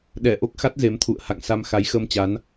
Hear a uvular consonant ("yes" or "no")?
no